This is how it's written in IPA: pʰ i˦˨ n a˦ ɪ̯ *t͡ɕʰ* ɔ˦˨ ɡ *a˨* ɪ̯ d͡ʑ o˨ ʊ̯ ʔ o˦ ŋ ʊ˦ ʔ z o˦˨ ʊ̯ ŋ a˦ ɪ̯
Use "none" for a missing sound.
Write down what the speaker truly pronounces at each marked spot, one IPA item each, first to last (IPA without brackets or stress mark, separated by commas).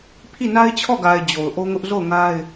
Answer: t͡ɕʰ, a˨